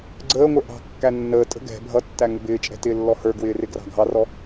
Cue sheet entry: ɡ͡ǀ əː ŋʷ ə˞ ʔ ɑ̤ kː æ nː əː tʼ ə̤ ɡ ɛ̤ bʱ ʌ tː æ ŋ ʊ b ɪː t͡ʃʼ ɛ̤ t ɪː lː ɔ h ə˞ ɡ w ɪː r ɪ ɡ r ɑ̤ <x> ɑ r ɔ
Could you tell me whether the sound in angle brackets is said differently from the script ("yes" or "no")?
yes